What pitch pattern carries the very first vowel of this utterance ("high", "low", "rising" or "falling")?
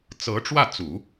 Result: rising